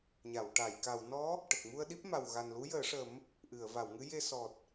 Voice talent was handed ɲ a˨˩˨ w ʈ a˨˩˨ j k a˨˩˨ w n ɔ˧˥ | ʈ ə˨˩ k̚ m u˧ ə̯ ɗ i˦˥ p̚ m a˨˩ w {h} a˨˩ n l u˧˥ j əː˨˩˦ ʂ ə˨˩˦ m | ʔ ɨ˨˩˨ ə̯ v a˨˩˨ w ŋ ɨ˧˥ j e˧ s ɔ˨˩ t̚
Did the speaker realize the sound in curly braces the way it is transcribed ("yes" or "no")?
no